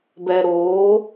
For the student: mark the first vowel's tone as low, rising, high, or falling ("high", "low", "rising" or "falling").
low